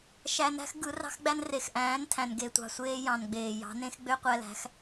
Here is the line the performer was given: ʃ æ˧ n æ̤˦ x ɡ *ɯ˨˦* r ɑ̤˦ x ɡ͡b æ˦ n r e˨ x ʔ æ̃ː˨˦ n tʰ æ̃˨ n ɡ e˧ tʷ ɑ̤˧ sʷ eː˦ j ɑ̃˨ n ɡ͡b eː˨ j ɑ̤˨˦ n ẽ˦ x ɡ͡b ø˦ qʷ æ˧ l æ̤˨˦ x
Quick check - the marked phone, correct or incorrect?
correct